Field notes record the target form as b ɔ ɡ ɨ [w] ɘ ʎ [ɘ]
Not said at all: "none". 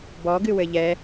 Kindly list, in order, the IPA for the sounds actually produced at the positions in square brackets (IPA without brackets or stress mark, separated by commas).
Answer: w, ɛ